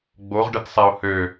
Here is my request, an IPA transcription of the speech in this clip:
ɡ͡b o ʁ ɖ ə t sˤ ɛ ʊ̯ h ø

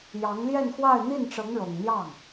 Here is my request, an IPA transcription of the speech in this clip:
j ɑ˧˥ ŋ l j ɛ˥˧ n x w a˥˧ ɪ̯ n̪ i˥˩ n ʈ͡ʂ ɤ˧˥ ŋ ɻ ɤ˨˩ ŋ n̪ j ɑ˥˩ ŋ

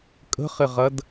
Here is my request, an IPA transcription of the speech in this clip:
kʼ ə̤ χ ɪ ʁ ɐ d

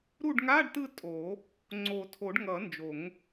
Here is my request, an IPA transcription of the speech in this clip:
ɾ u˦˨ ɖ ŋ a˧˥˧ ɖ t ɯ˦˨ tʼ o˨˩˦ | ŋ͡ǀ o˨˩˦ tʰ o˨˩˦ ɖ ŋ ʌ˨˩˦ n d͡ʒ o˨˩˦ ŋ

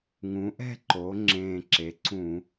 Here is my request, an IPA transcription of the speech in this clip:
ŋ ũ˩˧ ʔ ɛ̤˥˧ ǃ o˩˧ ŋ͡ǁ ẽː˨˩ ǁ e˩˥ ǀ ũ˧˩˧

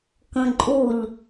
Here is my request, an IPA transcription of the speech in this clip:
k ə̃ ǃʼ u ʎ

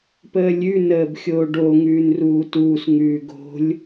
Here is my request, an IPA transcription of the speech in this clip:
p əː lʲ ʉ n əː b xʲ oː ɖ o ŋ ʉː n r uː t uː s ŋ ʉː ɡ o̤ lʲ

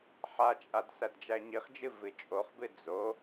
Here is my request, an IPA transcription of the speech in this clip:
ħ a t͡ʃʼ a d s æ d d͡ʒ æ ɲ i χ d͡ʒ ɨ v ɨ t͡ʃʼ o χ b ɨ d͡z o

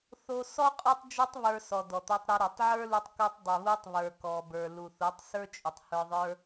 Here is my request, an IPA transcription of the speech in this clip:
θ o˧ s ɔ˦ qʼ ɔ˧ tˤ d͡ʒ o˧ tˤ β ə˞˧ s ɔ˨ d ɔ˨ t̪ ɔ˧ tˤ ɾ ɘ˧ ɾ ɔ˨ tˤ ʕ ə˞˦ l u˧ tˤ k o˧ tˤ dˤ ɘ˨ β u˧ tˤ β ə˞˨ k ɔ˨ b ə˞˨ l u˨ θ u˨˦ tˤ s ə˞˦ t͡ʃʼ u˨ tˤ h ə˞˧ ðˤ ə˞˦

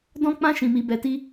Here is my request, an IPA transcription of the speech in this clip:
d ɔ̃˦ k͡p ã˦ ʃ ĩ˦ m i˦ b ɛ˦ t i˦

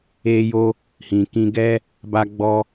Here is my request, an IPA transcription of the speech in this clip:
e˦ j o˦ | h ĩ˨ k ĩ˧ ɡ ɛ˦ | b a˧ ɡ͡b ɔ˧

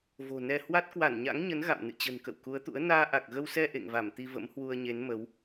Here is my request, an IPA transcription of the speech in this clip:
v o̤˨˩ n ɛ˧ h w a˦˥ t̚ k w a˧˩ n ɲ a̰˧˥ ŋ ɲ ə˨˦ n ɣ a̰˧˨ m n ɨ̰˧˨ t͡ɕ ə̤˨˩ n k ə̰˧˨ w k u˨˦ ə̯ t̪ ṵ˧˥ ə̯ n aː˧ ʔ a˨˩ k̚ ɣ ə˧ w s ɛ˧ ʔ ḛ˧˨ ŋ v a˧˩ m t̪ i˧ v ə̰˧˥ m h w u˧ ə̯ ɲ e˨˦ n m ə˨˦ w

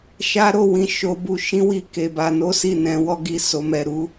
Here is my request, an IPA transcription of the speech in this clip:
ʃ a˦ ɾ o˦˨ w ĩ˧ ʃ o˧ b u˧ ʃ ĩ˦ w i˦˨ k e˧ b a˧ n o˦ s i˦˨ n ɛ̃˨˦ w ɔ˦ ɡ i˦˨ s o˨˦ m ɛ˧ ɾ u˦

